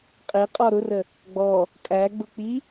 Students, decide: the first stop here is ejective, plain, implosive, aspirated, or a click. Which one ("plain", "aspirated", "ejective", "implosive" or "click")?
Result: ejective